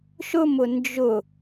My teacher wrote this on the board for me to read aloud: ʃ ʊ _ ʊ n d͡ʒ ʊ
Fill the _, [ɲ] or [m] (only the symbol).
m